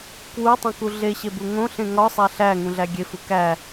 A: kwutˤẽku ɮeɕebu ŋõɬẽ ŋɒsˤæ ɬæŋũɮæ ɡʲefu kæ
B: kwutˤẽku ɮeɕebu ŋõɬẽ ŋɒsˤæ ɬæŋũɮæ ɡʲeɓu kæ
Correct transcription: A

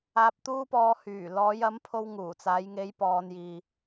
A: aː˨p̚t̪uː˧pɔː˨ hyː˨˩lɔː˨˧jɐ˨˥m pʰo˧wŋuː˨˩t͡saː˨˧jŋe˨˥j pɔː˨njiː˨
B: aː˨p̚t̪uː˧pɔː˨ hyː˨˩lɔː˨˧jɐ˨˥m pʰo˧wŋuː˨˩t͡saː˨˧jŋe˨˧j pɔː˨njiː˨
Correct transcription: B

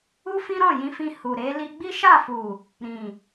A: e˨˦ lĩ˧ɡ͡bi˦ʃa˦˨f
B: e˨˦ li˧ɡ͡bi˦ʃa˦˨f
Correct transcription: B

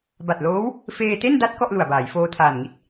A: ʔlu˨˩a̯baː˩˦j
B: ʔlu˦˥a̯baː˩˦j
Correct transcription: A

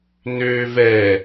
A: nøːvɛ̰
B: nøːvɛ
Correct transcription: B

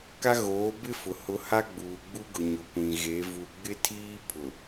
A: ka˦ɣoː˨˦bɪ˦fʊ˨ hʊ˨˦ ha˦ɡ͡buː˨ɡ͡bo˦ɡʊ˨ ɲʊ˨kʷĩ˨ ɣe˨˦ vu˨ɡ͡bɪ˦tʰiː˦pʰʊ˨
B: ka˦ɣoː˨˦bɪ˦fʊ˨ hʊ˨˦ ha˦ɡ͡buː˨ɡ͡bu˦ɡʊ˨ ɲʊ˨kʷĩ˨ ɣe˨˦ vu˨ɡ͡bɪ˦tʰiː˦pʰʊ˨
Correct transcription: B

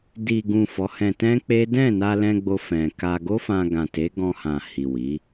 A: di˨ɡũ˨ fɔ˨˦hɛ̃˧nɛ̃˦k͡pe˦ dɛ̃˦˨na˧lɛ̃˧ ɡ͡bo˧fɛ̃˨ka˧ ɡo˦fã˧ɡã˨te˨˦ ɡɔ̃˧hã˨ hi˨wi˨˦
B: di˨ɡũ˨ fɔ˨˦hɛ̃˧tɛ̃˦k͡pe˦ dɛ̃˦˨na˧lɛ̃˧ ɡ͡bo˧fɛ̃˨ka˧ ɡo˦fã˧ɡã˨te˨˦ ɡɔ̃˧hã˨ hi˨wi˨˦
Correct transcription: B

